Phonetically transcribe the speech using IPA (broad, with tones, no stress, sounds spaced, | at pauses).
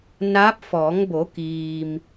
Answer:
n aː˧˥ p̚ f ɔː˩˧ ŋ b o˩˧ k iː˩ m